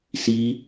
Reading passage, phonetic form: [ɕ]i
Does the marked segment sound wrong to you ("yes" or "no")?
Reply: yes